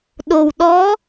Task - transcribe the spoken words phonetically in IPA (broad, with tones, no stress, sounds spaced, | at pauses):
ɗ o˨˩ w ɗ ɔ˧˥